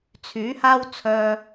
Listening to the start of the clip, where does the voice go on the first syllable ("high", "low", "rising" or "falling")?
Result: rising